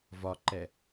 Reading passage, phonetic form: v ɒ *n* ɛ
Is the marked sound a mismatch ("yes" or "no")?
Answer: yes